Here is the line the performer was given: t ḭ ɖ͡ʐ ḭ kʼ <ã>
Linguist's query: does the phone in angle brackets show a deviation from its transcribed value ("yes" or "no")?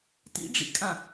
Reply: no